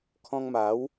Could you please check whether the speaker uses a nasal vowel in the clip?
yes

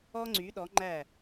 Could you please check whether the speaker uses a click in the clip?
yes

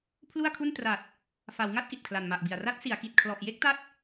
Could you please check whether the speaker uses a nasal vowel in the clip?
no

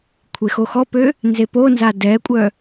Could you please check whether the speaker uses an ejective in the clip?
yes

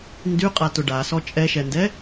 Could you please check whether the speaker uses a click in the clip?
no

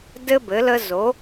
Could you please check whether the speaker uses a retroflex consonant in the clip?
no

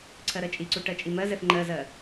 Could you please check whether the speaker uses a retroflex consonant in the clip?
yes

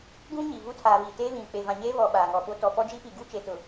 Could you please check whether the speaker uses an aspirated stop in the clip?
yes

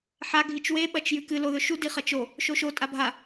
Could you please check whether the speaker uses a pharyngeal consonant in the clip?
yes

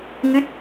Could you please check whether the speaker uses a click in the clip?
no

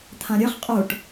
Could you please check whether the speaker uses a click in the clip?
no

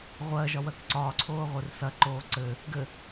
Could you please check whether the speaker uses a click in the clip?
yes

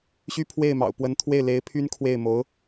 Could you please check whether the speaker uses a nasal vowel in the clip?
no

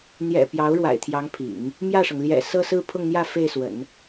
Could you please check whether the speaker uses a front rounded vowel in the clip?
no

